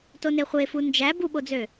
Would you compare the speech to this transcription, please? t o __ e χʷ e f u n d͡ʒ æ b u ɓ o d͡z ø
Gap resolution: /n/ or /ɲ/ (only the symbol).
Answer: n